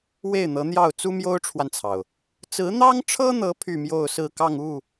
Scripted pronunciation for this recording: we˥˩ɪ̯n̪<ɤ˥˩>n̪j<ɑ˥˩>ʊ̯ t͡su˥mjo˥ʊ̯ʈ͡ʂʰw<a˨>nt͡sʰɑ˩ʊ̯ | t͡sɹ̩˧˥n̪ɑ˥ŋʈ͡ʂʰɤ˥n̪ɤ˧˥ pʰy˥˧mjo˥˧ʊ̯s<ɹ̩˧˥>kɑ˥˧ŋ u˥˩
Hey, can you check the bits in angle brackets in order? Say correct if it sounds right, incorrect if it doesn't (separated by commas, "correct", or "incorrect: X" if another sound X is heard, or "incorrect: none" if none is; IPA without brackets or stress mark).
incorrect: ɤ˧˥, correct, correct, incorrect: ɹ̩˥˧